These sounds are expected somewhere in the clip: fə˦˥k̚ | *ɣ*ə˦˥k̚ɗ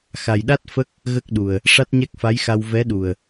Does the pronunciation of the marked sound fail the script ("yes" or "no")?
no